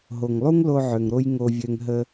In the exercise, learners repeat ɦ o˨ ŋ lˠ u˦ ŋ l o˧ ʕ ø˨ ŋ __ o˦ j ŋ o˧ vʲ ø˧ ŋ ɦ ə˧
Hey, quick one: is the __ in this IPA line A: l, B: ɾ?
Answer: B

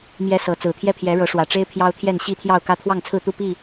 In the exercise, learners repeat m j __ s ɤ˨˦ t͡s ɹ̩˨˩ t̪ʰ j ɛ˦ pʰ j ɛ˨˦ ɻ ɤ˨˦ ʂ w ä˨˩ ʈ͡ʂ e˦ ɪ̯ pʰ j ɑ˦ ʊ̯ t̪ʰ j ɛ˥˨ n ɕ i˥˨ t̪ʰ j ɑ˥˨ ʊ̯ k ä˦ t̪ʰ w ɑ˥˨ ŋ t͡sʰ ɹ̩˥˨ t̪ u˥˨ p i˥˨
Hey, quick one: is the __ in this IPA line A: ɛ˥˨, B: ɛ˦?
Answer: B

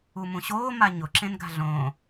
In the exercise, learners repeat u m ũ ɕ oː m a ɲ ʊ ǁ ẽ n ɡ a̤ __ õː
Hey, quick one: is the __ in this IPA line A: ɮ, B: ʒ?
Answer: A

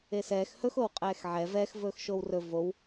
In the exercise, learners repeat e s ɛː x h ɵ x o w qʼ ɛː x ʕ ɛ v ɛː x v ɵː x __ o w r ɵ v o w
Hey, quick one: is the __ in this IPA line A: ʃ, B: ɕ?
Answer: A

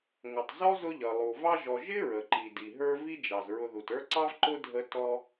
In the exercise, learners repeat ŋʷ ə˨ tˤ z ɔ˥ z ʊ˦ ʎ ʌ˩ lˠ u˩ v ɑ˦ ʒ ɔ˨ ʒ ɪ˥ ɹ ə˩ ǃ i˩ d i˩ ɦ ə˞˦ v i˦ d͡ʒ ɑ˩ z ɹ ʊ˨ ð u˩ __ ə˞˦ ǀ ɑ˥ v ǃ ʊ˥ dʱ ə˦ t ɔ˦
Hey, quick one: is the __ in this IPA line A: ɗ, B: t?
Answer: B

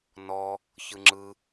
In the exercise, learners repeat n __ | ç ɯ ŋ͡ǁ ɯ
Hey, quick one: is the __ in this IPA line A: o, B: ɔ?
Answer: B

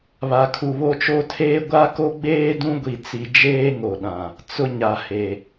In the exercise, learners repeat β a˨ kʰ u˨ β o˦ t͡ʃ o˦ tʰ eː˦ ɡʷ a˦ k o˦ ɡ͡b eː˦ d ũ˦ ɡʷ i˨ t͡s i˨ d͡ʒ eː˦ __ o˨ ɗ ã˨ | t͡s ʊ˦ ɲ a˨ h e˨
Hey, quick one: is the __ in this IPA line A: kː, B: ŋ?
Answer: B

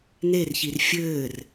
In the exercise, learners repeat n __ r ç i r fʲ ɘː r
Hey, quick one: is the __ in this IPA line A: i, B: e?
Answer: B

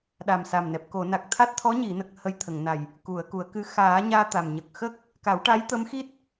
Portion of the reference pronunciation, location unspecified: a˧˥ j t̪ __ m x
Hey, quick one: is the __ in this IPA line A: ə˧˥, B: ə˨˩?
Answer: A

